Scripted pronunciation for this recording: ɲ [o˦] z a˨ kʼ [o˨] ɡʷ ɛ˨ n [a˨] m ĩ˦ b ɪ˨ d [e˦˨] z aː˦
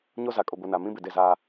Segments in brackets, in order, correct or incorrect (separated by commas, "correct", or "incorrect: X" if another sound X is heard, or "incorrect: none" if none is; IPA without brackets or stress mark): correct, correct, correct, correct